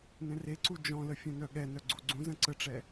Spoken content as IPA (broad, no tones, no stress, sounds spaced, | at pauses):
n ɛ̃ r e ǀ u d͡ʒ ɔ̃ l ə fʲ œ̃ n œ ɠ ɛ n œ ɡ͡ǀ u ɡ͡ǀ ũ z ə̃ ǀ ə ʈ͡ʂ ɛ